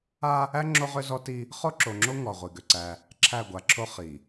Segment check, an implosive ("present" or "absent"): absent